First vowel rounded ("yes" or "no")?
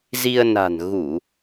no